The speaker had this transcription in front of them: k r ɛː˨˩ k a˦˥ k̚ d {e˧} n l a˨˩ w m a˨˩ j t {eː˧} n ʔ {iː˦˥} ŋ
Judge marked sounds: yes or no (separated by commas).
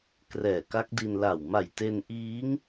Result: no, no, yes